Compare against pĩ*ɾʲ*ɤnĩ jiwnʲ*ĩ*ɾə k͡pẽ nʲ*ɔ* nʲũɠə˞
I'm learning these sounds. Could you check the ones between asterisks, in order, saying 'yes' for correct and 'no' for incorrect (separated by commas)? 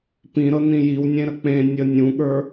no, no, no